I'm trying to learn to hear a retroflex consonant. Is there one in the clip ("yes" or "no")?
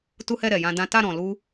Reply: no